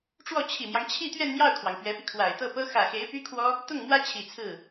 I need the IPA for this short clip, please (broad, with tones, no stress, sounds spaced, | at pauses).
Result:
ʈ͡ʂ w ɔ˥˩ t͡ɕʰ i˨˩ m j ɑ˦ ŋ t͡ɕʰ i˥˧ t̪ ɥ ɛ˥˧ n m j ɑ˥˩ ʊ̯ kʰ w ɑ˩ ŋ p ɥ ɛ˧˥ p i˧ kʰ w a˨˩ ɪ̯ t̪ ɤ˥˩ p ɤ˥ x ä˨˩ x e˧˥ ɪ̯ p y˥ kʰ w ɔ˥ | t̪ ʊ˥˩ ŋ m w ä˥ t͡ɕʰ i˨˩ t͡sʰ ɹ̩˥˩